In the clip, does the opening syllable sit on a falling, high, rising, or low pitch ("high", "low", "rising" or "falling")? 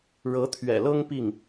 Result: rising